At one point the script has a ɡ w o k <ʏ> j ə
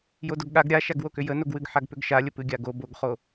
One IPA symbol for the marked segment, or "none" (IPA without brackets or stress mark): ʏ